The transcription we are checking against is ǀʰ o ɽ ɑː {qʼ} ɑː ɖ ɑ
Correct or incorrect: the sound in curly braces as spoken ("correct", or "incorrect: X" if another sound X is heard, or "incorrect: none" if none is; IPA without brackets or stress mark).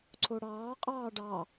correct